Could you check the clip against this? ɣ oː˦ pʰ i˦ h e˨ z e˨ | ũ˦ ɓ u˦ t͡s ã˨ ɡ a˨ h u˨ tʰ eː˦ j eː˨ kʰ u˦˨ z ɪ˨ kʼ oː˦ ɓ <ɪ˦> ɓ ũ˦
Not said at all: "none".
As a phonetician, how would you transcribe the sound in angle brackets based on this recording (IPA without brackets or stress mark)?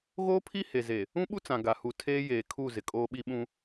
i˦